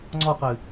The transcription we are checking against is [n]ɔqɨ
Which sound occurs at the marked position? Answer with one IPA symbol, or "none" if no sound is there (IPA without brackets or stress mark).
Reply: ŋ͡ǀ